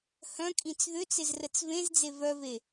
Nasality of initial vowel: nasal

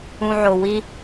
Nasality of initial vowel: nasal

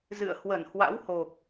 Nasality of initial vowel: oral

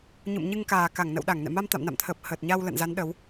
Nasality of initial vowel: oral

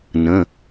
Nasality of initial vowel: nasal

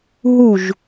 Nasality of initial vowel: oral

